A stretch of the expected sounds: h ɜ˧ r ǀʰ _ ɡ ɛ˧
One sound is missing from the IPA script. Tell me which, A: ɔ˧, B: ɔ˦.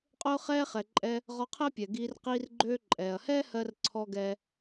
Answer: A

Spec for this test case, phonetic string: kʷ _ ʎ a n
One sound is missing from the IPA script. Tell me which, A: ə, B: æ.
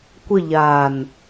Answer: A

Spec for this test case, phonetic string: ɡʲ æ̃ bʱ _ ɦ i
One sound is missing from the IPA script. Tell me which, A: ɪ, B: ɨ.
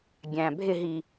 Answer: A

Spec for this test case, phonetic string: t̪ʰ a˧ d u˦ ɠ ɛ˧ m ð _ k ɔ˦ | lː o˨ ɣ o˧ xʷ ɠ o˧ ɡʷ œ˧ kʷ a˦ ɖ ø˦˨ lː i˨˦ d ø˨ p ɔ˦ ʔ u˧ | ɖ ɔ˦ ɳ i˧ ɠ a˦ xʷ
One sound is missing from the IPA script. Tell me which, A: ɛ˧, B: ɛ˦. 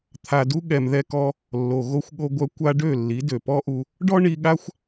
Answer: B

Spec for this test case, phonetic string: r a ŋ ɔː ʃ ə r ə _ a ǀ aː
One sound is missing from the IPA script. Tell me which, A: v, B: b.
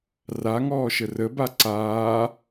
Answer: B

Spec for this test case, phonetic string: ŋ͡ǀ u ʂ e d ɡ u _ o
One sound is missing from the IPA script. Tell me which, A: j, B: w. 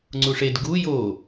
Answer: A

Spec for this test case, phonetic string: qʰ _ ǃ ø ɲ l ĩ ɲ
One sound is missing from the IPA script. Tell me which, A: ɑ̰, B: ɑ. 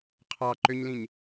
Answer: B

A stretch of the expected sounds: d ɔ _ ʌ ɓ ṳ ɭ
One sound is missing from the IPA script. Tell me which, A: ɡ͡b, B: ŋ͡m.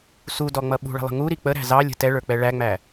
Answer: B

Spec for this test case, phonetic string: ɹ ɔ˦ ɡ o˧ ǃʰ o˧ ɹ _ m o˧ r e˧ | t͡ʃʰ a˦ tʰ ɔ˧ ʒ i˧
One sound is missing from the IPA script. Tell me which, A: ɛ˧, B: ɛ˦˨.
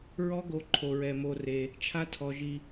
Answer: A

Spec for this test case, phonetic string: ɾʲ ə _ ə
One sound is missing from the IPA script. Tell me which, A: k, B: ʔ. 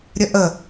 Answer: B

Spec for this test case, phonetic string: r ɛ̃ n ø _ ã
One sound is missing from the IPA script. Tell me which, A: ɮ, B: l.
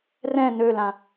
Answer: B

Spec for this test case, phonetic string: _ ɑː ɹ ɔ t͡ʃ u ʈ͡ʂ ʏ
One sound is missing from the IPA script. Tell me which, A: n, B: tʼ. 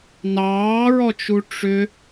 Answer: A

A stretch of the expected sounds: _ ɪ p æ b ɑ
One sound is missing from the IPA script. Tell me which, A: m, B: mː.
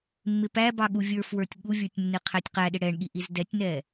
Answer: B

